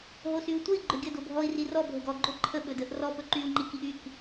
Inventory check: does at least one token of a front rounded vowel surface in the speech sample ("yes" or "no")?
yes